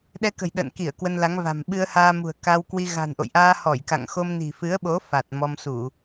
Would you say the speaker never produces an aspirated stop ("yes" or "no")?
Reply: yes